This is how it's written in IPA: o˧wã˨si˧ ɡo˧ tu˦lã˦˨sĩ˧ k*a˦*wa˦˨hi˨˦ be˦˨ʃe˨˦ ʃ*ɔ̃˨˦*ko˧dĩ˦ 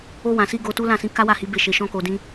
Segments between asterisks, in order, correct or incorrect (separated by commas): correct, incorrect